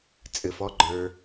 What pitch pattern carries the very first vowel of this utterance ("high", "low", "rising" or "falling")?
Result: low